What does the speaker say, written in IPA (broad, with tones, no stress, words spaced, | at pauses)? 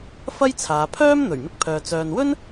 fɐ˥jt͡sʰaː˨˧ pʰœː˥mn̪ɵ˨˩ɥ mɪ˧k̚pʰœː˨ t͡sœː˨nwɵ˥n